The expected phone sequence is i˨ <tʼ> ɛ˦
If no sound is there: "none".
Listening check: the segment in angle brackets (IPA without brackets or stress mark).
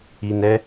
n